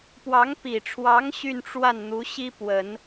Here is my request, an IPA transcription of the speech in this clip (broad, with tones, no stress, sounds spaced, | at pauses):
p w ɑ˧˥ ŋ p i˨˩ ʈ͡ʂʰ w ɑ˧˥ ŋ ɕ y˥˧ n ʈ͡ʂ w a˥˩ n n̪ u˧˥ ɕ i˥ p w ə˨˩˦ n